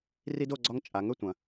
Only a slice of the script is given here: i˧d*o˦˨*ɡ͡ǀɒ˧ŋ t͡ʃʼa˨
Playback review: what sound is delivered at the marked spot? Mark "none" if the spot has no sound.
o˦˨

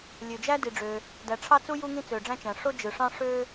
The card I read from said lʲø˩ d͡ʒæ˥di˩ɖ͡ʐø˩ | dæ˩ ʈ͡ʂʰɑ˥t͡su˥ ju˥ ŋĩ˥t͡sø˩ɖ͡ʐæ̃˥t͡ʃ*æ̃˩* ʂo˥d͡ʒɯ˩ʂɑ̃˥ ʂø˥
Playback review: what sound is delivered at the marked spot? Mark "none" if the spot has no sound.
æ̃˩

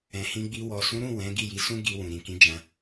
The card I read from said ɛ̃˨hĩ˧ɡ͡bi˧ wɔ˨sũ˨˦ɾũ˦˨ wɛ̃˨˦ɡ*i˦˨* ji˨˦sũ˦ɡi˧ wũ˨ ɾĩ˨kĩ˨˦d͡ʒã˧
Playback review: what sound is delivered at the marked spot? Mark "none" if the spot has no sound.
i˦˨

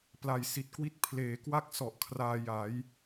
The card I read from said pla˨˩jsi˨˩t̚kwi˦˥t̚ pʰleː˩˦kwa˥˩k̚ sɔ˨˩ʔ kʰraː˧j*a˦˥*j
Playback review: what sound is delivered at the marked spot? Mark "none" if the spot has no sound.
a˩˦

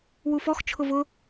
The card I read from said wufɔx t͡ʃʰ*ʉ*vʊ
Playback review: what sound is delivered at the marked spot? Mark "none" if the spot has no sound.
ʊ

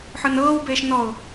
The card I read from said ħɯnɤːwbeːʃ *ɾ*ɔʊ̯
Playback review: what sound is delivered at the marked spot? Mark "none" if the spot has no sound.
n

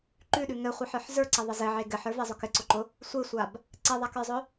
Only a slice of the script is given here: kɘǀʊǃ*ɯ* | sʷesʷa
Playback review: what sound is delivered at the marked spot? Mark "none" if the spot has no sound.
ʊ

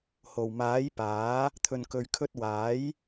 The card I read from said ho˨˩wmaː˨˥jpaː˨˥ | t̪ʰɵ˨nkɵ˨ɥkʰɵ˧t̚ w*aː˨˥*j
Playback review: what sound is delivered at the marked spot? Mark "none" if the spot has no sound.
aː˨˥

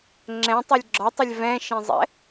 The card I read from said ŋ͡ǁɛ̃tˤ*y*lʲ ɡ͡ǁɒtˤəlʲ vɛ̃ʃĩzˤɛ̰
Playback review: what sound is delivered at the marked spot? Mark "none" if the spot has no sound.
y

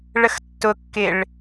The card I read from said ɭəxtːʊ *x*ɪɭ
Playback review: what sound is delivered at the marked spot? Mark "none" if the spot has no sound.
kː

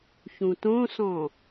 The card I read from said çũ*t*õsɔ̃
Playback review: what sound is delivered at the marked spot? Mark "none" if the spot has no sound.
t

